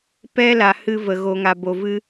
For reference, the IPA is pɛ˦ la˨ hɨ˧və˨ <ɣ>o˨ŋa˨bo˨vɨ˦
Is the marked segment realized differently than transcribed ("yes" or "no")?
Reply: no